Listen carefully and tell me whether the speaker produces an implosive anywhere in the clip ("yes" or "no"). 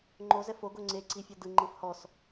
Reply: no